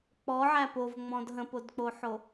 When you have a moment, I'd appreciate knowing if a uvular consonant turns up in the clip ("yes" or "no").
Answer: no